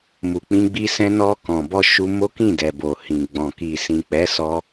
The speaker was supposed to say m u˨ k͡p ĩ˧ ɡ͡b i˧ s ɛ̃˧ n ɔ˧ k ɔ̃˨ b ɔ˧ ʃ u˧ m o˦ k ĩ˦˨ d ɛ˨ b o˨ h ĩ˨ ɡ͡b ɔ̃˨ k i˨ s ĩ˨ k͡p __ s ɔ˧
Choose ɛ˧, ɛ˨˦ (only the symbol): ɛ˨˦